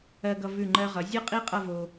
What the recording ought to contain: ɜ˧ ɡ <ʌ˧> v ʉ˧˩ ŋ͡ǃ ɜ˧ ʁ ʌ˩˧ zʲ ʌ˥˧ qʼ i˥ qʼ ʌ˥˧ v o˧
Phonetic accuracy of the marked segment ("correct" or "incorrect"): correct